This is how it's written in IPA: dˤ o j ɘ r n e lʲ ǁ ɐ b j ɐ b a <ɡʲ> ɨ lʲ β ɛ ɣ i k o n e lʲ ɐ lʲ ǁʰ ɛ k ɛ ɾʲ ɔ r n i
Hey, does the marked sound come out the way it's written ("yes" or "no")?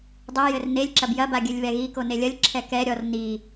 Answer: yes